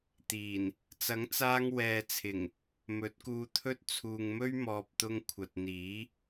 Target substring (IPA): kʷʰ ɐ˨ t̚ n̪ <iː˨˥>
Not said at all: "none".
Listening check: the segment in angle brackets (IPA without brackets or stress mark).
iː˨˥